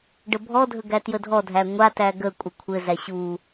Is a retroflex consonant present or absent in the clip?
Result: present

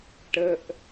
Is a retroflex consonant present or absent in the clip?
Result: present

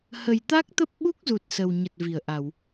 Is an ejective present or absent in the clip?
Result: absent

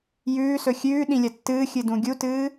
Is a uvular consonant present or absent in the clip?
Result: absent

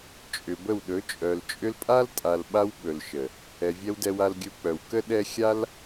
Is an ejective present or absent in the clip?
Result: present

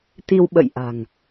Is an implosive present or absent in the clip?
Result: present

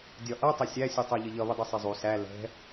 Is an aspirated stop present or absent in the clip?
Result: absent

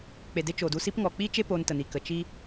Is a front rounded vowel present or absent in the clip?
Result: absent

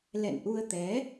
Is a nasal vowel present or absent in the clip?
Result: absent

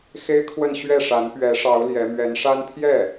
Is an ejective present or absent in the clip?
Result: absent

